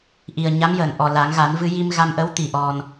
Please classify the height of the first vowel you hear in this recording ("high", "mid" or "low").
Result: high